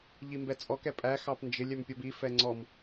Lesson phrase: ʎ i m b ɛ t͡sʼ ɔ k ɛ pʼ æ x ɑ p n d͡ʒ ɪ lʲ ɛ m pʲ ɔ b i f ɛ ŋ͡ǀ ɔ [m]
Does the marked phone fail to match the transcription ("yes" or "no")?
no